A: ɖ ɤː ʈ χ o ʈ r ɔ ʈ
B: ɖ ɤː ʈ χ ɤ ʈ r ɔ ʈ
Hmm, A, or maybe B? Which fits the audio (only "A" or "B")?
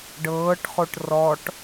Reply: A